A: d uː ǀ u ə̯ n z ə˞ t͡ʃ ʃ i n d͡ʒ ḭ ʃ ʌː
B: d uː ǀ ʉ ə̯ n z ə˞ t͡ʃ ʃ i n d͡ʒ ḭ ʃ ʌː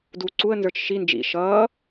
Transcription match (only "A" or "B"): A